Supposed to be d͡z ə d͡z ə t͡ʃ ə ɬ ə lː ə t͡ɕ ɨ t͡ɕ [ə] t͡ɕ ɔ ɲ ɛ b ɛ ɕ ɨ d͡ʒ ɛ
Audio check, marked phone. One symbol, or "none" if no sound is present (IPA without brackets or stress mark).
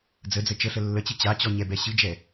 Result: a